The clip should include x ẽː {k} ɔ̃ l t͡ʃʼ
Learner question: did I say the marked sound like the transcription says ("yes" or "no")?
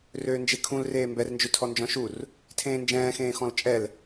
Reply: no